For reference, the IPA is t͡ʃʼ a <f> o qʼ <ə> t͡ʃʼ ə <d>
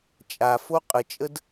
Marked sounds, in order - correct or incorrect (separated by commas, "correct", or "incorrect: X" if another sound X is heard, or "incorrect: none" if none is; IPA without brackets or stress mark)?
correct, correct, correct